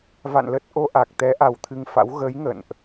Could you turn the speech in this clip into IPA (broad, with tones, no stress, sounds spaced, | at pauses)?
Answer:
v a̰˧˨ n l ə˦˥ t̚ ʔ o˧ ʔ a˨˩ k̚ t̪ ɛ˨˦ ʔ a˨˩ w t̪ʰ ɨ˧ ŋ f a̰˧˥ w ɣ ə˨˦ j ŋ ə̰˧˨ n ʔ